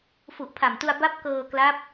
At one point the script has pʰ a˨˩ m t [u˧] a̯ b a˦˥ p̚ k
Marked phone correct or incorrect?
correct